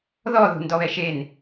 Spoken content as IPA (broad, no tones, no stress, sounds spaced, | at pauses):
ð ɔ ð ṳ n d ɔ β ɛ ʃ e n